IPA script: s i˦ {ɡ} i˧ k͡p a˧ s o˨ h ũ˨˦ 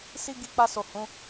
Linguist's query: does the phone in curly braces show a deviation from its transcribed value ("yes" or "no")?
no